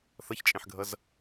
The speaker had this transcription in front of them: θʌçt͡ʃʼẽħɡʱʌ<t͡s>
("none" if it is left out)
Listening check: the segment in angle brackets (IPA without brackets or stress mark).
z